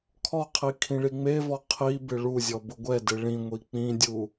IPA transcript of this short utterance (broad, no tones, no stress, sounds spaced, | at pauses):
kʰ ɔ qʰ i kʰ ĩ ɭ i ŋ͡m e v ɔ qʰ i b ɪ ɭ u zʲ ɔ b ʊ ɡʷ ɛ d ɪ ɭ ĩ ŋʷ i k͡p ĩ dʲ u